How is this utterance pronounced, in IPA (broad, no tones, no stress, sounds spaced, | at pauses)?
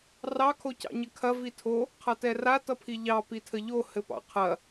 r ɑ kʰ o c ɑ̰ ɲ ɘ kʰ ɐ v i tʰ o | qʰ ʌ t ɛ r a t ʌ pʰ i ʎ ɑ p i tʰ ə ʎ o h ɘ p ɑ̰ qʰ ɐ